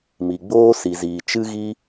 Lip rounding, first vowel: unrounded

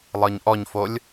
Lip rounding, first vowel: unrounded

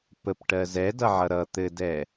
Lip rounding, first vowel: unrounded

